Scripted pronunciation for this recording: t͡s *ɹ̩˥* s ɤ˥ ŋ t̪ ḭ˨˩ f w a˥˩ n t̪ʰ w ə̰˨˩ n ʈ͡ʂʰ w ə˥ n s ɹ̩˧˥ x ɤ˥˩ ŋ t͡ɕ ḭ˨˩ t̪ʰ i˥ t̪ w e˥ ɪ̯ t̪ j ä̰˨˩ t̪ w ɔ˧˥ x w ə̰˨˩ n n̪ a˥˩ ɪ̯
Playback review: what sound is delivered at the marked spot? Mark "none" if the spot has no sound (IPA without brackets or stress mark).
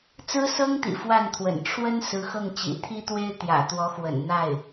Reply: ɹ̩˥